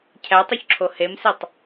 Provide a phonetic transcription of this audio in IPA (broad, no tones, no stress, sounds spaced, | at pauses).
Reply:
cʰ æ tˤ u ç ǁʰ o h e m s e tˤ